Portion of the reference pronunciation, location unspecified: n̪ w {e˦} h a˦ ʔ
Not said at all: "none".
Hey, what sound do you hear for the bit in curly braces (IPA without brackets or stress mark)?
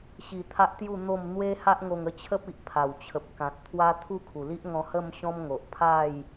e˦